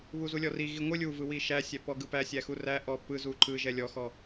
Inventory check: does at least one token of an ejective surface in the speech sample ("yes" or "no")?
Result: no